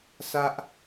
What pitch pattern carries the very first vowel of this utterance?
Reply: high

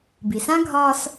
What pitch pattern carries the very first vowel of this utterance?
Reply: low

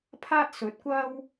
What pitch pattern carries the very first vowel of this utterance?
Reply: high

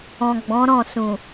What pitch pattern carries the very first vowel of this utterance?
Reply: low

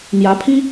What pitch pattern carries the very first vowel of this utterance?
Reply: rising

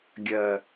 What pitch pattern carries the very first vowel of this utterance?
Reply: low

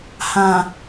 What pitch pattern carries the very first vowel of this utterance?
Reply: low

